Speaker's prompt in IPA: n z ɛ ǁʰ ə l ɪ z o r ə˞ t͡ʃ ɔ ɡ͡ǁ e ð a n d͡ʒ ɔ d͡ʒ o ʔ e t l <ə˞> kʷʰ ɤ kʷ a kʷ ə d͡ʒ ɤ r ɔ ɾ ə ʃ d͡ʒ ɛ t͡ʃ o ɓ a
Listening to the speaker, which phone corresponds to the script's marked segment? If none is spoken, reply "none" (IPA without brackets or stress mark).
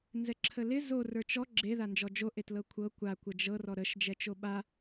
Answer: ɤ